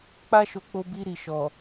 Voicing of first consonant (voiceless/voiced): voiceless